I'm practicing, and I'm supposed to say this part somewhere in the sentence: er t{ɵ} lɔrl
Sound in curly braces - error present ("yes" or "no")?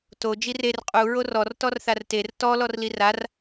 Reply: yes